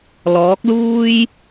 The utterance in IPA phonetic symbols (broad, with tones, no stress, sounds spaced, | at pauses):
l ɔː˨˥ k̚ l uː˥ j